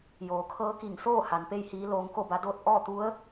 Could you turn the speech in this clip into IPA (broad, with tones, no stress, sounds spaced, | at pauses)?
j oː˩˧ kʰ ɤː˧˥ k i˧˩ ŋ s oː˥˨ h a˩˧ n p e˥˨ j h iː˧˥ l oː˧ ŋ k o˥˨ b a˧˥ d oː˥˨ t̚ ʔ ɔː˥˨ t̪ u˧˥ ə̯